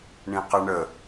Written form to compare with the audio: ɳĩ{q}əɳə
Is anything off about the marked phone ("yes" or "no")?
no